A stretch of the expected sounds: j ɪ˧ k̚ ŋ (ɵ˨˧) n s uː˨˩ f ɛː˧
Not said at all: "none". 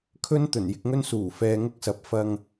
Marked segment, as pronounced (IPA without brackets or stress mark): ɵ˥